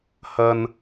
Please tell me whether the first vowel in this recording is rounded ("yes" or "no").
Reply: no